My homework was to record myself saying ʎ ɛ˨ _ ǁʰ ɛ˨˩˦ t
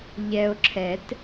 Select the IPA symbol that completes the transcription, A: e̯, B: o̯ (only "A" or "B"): B